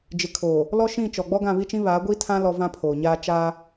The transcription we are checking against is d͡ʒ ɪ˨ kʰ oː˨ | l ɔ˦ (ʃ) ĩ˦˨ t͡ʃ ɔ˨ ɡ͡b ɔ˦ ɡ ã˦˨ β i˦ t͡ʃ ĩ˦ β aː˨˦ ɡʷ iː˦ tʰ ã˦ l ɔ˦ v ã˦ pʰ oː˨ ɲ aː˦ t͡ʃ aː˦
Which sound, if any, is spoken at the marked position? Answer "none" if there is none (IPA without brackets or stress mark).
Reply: ʃ